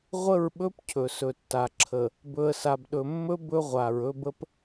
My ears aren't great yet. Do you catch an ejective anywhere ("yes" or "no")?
no